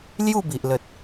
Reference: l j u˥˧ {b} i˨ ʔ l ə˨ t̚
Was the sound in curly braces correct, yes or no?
yes